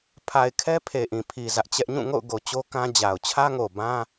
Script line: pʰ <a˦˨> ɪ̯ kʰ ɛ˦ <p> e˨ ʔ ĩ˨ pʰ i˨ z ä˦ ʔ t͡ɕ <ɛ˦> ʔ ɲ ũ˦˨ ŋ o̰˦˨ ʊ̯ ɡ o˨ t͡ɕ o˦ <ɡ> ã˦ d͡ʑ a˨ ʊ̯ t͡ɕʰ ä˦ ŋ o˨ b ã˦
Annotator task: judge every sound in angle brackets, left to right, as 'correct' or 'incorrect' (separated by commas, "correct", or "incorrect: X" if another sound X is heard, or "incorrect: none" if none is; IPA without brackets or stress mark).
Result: incorrect: a˨, incorrect: pʰ, correct, incorrect: k